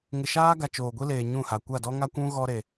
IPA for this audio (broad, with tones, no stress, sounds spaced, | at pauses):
ŋ ɪ˨ ʃ aː˦ ɡ a˨ t͡ʃ oː˨ ɡʷ i˦ l eː˨ ɲ ũ˦˨ h a˨ kʷ a˦˨ d ɔ˦ ŋ a˦ kʷ ũ˦ ɣ ɔ˦ ɾ e˨